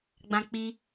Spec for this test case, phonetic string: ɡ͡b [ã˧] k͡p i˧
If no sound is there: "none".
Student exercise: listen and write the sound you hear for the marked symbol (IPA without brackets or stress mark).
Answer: ã˧